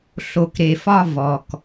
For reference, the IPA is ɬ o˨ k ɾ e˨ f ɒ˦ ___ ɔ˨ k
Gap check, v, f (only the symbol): v